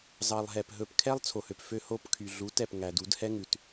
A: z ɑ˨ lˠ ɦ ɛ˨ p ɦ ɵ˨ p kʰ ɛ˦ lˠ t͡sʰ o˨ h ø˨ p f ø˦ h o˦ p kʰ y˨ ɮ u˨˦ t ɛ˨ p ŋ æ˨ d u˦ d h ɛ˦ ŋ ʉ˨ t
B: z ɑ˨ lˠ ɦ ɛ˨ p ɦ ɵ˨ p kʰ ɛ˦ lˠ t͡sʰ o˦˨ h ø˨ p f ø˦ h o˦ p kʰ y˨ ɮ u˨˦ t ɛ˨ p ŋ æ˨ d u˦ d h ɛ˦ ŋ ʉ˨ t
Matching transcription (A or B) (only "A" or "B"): A